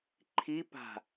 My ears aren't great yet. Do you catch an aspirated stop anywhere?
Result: yes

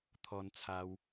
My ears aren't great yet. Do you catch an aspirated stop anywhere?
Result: yes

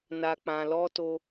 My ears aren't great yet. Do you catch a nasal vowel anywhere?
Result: yes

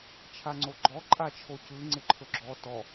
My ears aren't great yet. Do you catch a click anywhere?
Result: yes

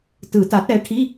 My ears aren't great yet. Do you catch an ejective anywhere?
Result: no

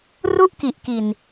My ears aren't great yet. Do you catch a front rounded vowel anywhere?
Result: no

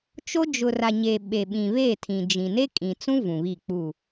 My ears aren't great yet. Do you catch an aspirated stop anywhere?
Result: yes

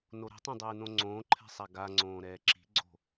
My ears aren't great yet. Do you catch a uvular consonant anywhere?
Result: no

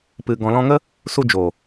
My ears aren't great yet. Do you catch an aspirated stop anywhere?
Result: no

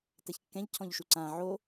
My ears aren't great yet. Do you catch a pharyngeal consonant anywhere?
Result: yes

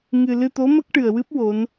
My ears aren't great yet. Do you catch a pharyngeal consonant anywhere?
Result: no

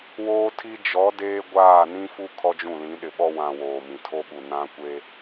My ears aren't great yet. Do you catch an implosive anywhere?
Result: yes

